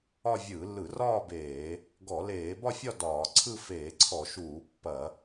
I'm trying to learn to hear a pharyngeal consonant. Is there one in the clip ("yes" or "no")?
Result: no